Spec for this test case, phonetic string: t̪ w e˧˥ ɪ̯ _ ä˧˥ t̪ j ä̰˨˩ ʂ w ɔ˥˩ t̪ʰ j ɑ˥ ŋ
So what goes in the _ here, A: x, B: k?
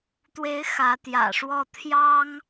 A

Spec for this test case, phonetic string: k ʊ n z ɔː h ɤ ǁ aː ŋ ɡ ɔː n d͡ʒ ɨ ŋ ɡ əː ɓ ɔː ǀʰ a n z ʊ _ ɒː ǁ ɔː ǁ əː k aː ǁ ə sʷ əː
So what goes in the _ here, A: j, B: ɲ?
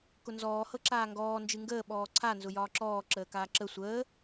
A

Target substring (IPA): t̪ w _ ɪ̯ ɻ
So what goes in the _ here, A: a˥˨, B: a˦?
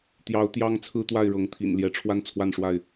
A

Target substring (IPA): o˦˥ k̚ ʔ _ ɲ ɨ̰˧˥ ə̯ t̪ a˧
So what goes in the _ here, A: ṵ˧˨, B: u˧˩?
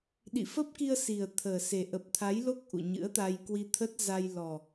A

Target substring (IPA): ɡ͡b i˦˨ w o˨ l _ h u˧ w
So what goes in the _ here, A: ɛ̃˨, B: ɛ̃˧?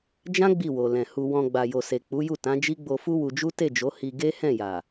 A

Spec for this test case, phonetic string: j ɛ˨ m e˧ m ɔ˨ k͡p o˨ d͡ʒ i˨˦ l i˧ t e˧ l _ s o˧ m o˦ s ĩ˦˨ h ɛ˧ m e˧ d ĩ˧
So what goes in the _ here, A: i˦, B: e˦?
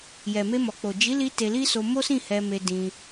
A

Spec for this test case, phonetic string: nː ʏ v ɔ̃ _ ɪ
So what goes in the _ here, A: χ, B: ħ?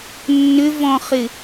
A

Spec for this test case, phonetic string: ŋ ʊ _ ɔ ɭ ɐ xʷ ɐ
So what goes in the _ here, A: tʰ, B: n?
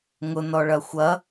B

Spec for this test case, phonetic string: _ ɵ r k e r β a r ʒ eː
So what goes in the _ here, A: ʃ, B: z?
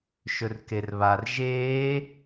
A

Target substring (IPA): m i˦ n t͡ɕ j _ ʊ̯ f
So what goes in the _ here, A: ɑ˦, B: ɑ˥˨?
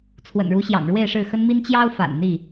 A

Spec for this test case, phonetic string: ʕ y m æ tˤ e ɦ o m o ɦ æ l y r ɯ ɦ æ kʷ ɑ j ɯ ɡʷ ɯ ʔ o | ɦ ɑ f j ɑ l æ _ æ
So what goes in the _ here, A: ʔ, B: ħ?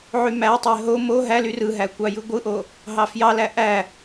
A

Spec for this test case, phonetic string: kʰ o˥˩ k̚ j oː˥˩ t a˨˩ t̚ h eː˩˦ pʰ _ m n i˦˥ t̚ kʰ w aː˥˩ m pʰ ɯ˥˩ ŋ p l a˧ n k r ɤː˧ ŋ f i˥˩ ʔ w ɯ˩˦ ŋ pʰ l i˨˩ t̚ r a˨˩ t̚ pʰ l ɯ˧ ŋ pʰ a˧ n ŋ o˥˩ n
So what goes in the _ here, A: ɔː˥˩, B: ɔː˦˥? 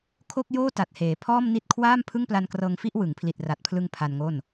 A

